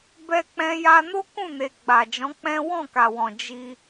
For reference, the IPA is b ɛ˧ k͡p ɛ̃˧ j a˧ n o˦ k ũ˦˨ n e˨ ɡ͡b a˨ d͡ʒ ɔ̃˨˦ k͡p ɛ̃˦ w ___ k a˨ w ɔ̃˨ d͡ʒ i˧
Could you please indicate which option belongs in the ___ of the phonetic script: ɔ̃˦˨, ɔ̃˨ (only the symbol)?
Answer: ɔ̃˦˨